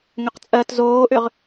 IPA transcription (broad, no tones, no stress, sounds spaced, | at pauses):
ŋ ʏ q t͡sʼ ɜ t z oː ʔ ʏ ʁ